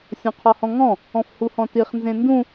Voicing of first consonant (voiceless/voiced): voiceless